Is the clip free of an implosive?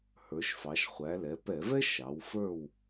yes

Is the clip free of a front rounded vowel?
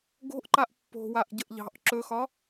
yes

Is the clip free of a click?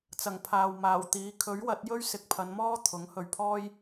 yes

